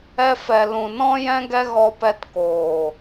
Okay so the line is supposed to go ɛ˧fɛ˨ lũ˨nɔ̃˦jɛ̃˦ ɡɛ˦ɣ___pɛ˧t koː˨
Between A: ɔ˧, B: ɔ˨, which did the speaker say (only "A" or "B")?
A